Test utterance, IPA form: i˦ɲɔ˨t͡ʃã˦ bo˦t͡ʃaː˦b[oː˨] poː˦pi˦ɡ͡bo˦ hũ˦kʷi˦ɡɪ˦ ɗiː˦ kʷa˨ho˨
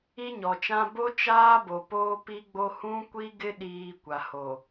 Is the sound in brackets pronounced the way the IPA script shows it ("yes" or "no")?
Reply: no